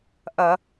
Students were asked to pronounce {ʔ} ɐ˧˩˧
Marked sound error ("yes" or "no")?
no